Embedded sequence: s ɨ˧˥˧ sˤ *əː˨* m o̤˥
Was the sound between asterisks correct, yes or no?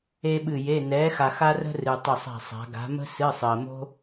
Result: yes